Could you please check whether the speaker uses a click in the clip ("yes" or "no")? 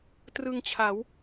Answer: no